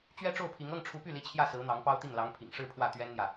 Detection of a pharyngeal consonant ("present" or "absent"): absent